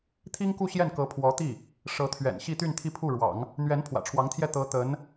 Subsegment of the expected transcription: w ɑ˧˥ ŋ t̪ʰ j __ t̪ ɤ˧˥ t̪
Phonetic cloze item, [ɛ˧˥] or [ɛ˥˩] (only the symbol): ɛ˥˩